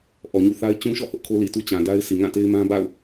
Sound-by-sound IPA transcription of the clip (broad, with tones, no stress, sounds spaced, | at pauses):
ʔ ɔ˨ ɲ ṵ˦˨ θ a˦ ɪ̯ t͡ɕ ũ˦ ʃ ɔ̰˦˨ h ʊ˦ ʔ kʰ o˦ l i˨ t u˦ t͡ɕ ã˨ d a˦ ɪ̯ s i˨ ŋ ã˦˨ t e˦ ɪ̯ m ã˦ b a̰˦˨ ʊ̯